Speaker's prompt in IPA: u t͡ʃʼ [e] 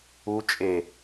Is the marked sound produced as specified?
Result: yes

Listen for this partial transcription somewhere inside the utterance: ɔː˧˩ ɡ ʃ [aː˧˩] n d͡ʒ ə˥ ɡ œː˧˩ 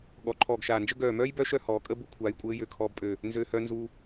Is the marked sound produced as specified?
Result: yes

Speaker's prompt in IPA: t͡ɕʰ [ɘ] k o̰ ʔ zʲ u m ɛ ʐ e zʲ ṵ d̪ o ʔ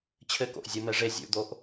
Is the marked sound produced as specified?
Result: yes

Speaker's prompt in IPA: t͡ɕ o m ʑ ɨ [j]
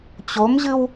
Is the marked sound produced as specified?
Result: no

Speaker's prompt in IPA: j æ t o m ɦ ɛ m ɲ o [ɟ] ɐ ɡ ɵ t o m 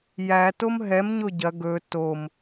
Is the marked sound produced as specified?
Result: yes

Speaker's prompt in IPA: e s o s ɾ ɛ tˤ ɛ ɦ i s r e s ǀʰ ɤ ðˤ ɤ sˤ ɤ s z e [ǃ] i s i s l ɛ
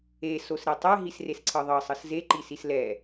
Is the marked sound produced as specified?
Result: yes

